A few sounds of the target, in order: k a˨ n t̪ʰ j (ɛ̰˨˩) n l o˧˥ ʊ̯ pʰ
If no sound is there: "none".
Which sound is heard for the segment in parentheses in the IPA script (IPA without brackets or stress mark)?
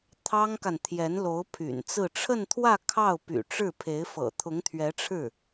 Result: ɛ˧˥